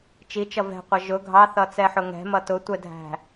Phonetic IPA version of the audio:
t͡ʃ i t͡ʃ ʌ v ɛ̤ qʷ ʌ ʒ ʊ ɡʱ ɑ θ ʌ t͡s ɛ ħ ʊ ŋ ɛ̤ m ʌ t ʊ tʷ ɛ dʱ æ̤

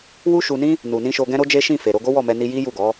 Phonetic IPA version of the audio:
w u˦ ʃ u˧ n ĩ˦ | n u˨ n ĩ˧ ʃ o˧ ɡ ɛ̃˦ ɾ o˦ d͡ʒ e˦ ʃ ĩ˦˨ f e˨ ɾ o˧ ɡ o˦ w ɔ˦˨ m ɛ˧ n i˧ j i˦ j u˦˨ ɡ ɔ˨˦

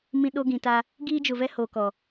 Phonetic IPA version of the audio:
m ĩ˦ ɗ o˦ ɡ ĩ˨ t a˦ | ɡ iː˦ d͡ʒ ʊ˨ v ɛ˦ h oː˨ k ɔ˨

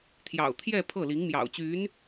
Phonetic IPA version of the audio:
t̪ʰ j ɑ̰˨˩ ʊ̯ t̪ʰ j ɛ˥˧ pʰ ɤ˥˩ l i˧˥ ŋ m j ɑ̰˨˩ ʊ̯ t͡ɕ y˧˥ n

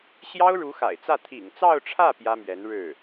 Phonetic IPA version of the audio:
ɕ j ɑ˥ ʊ̯ ɻ u˧˥ x a̰˨˩ ɪ̯ t͡s ä˥˩ t̪ʰ ḭ˨˩ ŋ t͡s ɑ˥˧ ʊ̯ ʈ͡ʂʰ ä˥˩ p j ä˥ m ɥ ɛ˧˥ n ɻ ɻ̩˥˩

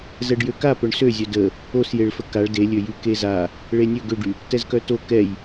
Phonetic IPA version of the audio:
z ɛ ɖ j ø k a p œ ɳ s ø zʲ œ d ə | o s j e ɭ f ə k a ɭ d e lʲ ø j y k e z a | ɭ e nʲ ø ɡ ø ɖ y | t ɛ z k œ t o k ɛ j

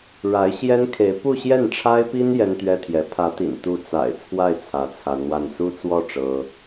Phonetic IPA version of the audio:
ɻ a˧˥ ɪ̯ ɕ j ɛ˥ n kʰ e˧˥ ɪ̯ p u˥˧ ɕ j ɛ˥˩ n ʈ͡ʂʰ a˥ ɪ̯ p i˥ n j ɛ˥ n t̪ ɥ ɛ˥ t̪ʰ j ɛ˧˥ pʰ ä˧˥ t̪ ḭ˨˩ n t̪ u˥˩ t͡s a̰˨˩ ɪ̯ t͡sʰ w a˥˩ ɪ̯ t͡sʰ ä˧˥ t͡sʰ a˧˥ n w a˥˩ n s u˥ t͡s w ɔ˥˩ ʈ͡ʂ ɤ˥

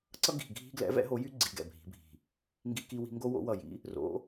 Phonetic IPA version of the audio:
ǀ ʌ˦ ɡ i̤˧˩ ɡʱ i̤˦ ɡ l ɛ̰˨˥ v ɛ̰˨˥ ɦ o˨˥ j y˦ ɡ͡ǀ i˨˥ ɡ ɛ̰˧˩ bʱ i̤˨˥ bʱ i̤˧˩ | ŋ ɡ i˦ k i˦ w i̤˦ ŋ ɡ o˦ w o̰˨˥ w ʌ˧˩ j ḭ˨˥ | r o̰˨˥

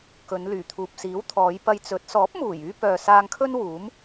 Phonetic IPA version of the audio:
k ɵ˨˧ n l yː˨˩ t̪ʰ uː˨ p̚ s iː˨˥ w t̪ʰ ɔː˨˧ j p ɐ˧ j t͡s ɵ˨˥ t̚ s ɔː˨˥ p̚ m uː˨˩ j yː˧ p œː˨ s aː˧ ŋ kʰ ɵ˥ n w uː˨˥ m

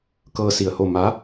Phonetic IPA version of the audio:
k ɤː˧ s i˧˩ ə̯ h o˥˨ m a˧˥

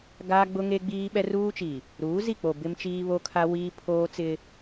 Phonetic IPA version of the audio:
ɡ aː˦ ɡ͡b ʊ˦ ŋ e˦ ɡ͡b iː˦ ɓ ɛ˦ r uː˦ t͡ʃ i˨ | ɾ uː˨˦ z i˦˨ k͡p o˨ b ɪ˦ m t͡ʃ iː˦ β o˦ kʰ a˦ w iː˦ pʰ oː˦ t͡s ɪ˦

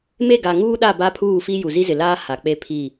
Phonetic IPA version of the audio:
m e˦˨ ɡ a˨ ŋ uː˦ ɗ a˦˨ b a˦ pʰ uː˦˨ f i˦ j u˨ z i˦ z ɪ˨ l aː˦ h a˨ k͡p e˦ pʰ i˦˨

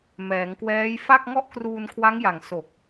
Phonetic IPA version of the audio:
m ɛː˩˦ ŋ k w ɛː˦˥ j f a˥˩ k̚ ŋ ɔ˥˩ ʔ k r uː˧ n kʰ w a˦˥ ŋ j a˨˩ ŋ s o˨˩ k̚

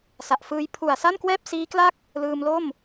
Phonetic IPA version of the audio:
s a˨˩ ʔ f ɯː˧ j pʰ u˨˩ a̯ s a˥˩ n k w ɛː˥˩ p̚ s iː˦˥ k l a˥˩ k̚ | l ɯː˧ m l o˥˩ m

